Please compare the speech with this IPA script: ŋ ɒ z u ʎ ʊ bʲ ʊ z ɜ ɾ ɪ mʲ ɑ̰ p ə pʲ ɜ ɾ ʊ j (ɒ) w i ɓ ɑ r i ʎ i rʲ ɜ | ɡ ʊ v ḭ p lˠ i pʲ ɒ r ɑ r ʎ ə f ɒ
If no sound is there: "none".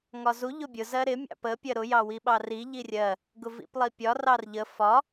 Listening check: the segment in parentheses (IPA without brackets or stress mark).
ɑ